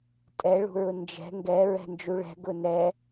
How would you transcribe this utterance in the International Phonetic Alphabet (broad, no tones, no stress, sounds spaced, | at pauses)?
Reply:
tʼ ɛ ɭ ṳ ɹ ʊ n d͡ʒ ɛ̤ ŋ ɡ ɛ ɹ ɛ̤ n d͡ʒ u ɭ ɛ̤ ɡ ʊ n ɛ